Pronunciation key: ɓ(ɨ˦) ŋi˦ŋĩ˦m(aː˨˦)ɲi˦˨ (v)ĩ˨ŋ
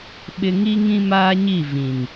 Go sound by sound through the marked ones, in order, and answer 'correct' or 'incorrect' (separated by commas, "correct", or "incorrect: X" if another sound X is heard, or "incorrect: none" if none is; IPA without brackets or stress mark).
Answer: incorrect: ɪ˦, incorrect: aː˦, correct